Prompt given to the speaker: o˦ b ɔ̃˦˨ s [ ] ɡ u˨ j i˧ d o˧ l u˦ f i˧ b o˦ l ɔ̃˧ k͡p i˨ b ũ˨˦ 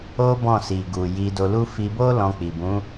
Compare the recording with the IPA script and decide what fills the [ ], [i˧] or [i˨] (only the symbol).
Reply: i˨